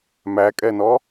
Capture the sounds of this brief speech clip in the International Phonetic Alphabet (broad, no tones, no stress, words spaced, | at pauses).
mækʼɛnɔ